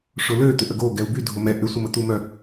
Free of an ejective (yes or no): yes